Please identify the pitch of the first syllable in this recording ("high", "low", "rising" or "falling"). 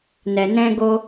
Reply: low